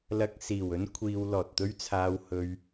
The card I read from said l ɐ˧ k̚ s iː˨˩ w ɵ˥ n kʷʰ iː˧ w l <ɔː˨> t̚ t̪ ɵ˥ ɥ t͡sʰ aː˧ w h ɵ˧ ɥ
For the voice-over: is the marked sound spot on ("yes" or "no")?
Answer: yes